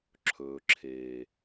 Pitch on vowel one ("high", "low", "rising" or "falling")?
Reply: low